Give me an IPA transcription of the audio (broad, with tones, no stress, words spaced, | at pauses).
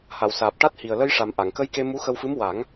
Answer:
ha˨˩˨wsaː˨˩p̚ ʈa˦˥t̚hi˨˩ə̯ lə˧jʂa˨˩m ʔa˨˩˨ŋkə˧˥jke˧ mu˧˥xə˧wfɨ˧˥m wa˨˩˦ŋ